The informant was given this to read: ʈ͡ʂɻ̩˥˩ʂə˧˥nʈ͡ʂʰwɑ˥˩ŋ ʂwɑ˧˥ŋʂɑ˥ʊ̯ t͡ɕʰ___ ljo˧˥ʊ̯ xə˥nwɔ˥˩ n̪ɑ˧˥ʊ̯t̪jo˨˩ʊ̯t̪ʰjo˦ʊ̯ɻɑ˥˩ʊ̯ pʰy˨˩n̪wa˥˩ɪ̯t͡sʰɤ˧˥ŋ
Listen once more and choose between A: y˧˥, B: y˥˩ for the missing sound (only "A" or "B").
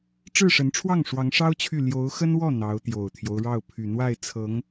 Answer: B